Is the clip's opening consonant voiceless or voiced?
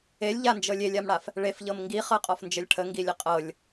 voiced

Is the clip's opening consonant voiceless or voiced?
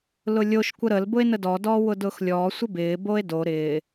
voiced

